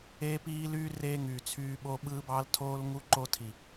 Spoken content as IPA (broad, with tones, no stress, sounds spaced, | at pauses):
eː˦ p iː˦ l yː˦ r eː˦ ŋ yː˨ t͡sʰ yː˦ ɓ o˦ ɓ ɯː˦ b ɑ˦ l tʰ oː˦ l ŋ u˦ ǃ o˦ tʰ i˨